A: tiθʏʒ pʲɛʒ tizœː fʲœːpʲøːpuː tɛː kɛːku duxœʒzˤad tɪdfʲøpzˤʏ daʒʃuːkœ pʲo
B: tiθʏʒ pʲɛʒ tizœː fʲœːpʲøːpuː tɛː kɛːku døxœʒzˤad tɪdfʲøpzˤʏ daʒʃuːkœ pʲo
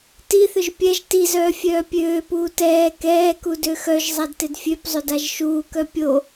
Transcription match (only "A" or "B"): B